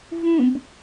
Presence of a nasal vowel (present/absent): present